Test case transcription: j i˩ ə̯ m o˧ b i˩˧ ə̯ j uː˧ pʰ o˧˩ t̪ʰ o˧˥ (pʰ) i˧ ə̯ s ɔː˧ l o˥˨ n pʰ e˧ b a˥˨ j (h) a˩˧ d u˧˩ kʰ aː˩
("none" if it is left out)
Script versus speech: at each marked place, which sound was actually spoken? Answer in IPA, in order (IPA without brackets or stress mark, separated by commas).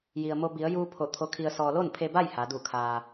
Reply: kʰ, h